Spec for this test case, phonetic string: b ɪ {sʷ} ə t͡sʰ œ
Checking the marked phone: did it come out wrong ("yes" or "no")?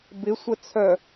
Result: no